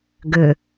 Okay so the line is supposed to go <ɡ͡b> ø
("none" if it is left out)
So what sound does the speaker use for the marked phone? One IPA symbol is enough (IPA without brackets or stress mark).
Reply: ɡ